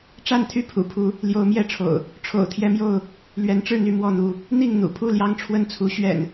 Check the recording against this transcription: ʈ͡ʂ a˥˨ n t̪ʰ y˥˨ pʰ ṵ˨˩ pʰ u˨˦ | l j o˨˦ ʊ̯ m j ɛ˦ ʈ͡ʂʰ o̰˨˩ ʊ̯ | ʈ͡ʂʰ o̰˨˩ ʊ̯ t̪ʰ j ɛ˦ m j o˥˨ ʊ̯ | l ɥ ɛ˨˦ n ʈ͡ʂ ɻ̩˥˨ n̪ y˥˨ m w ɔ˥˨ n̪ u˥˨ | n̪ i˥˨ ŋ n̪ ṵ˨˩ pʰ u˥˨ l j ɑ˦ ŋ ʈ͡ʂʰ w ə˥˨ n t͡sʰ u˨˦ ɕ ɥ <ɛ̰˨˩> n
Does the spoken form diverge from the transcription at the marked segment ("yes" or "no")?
no